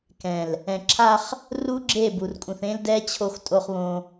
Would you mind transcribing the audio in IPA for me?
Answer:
k ɛ̃˨ l | ɛ̃˨ ǁʰ a˦ χ | r u˦ ɡ͡ǁ e˦˨ b u˨ r kʼ ũ˨ θ ẽ˦ l d ɛ˦ t͡ɕʰ o˦˨ x tʼ o˦ χ β õ˦

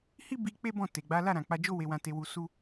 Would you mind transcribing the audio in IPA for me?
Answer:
h i˦ b i˧ k͡p e˦ b ɔ̃˦˨ t e˨ ɡ͡b a˨˦ l a˦˨ ɾ ã˨ k͡p a˧ d͡ʒ o˦ w e˧ w ã˧ t e˧ w u˧ s u˦

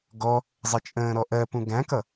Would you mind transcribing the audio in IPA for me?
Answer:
ɡ ɔ | zˤ ɪ t͡ʃʼ ə̃ː ɾ ɔ ʔ ɜ p ũ ɡ æ̃ k ʌ

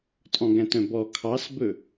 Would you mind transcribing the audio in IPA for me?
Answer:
tʼ ɔ̃ ɡ æ̃ t œ̃ b ɔ kʰ ɑ s b ɵ

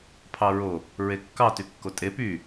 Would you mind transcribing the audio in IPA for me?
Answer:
pʰ ɑ ɹ o | ɹ e kː ɑ t y kː o tʼ e p y

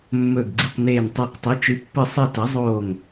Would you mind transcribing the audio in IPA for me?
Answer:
mː ɵː˧˩ ɡ ɡ͡ǀ i˧˩ q n eː˧˩ n tˤ e˧˩ q tˤ i˩˥ t͡ʃ ɨ˩˥ pː ɨ˧˩ sˤ i˧˩ t ɐ˩˥ zˤ oː˧˩ ŋ

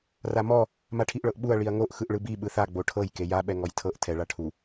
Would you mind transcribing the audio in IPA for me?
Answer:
r a m ɔ | m a ʈʰ i ʔ ɭ ɤ ʔ ɓ u ɐ̯ ɭ i ɐ̯ ŋ o ʔ x ɯ ʔ ɭ ɯ b i ɓ ɯ θ a ɡ͡b o ʈʰ ɤ j k e j a ɓ ɛ ŋ ɔ j tʰ ɤ ʔ tʰ ɛ ɭ a ʈʰ u

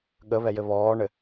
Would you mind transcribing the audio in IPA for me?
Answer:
ɠ ə β ɛ j ɘ β ɔː ɳ ɘ

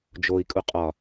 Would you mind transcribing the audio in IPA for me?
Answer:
d͡ʒ o i̯ kʼ u qʼ ɒ

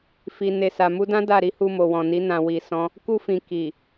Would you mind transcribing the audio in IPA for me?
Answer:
f i˨ n e˨ s a˨ m u˧ d ã˦ d a˦˨ ɾ i˨˦ h u˧ m o˨ w ɔ̃˨ n i˨˦ n ã˧ w i˧ s ɔ̃˦ | k u˧ f ĩ˨ k i˨

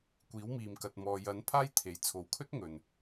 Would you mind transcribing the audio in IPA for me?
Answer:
kʷ iː˨˥ w m iː˨ m k ɐ˨ t̚ m ɔː˨ j ɐ˨˥ n pʰ aː˥ j t̪ʰ e˨˥ j t͡sʰ o˨˧ w kʰ ɵ˥ t̚ ŋ ɵ˨ n

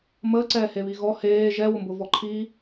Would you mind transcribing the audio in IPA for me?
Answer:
m əː ǀ ɛː h e β i ɣ ɔ h eː ʒ ɛ w ʊ m b ʊ v ɔ ǃʰ i

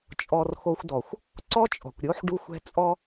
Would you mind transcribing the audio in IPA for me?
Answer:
t͡ʃʼ ɔ˧ r x o˧ xʷ d ɔ˨ xʷ | ǀ ɔ˦ t͡ʃʼ ɔ̤˨ kʷ ɾʲ o˦ ħ ɖ u˦ xʷ ɛ̤˦ t͡sʼ ɔ˦

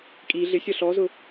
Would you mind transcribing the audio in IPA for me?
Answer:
kʼ i ɮ ɪ sʲ ʌ ɬ ɔ z ʊ

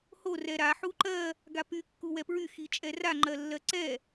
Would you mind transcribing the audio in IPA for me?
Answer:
h o r ɛ ɾ a ħ u ǃ ɜ | ɡ a p y kː u w ɛ p ɹ y x i t͡ʃʼ ɛ r a ŋ͡ǃ ɜ lː ɜ ǀ ɛ

